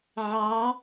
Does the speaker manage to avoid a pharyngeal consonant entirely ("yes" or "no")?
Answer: no